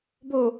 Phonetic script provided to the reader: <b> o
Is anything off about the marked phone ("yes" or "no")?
no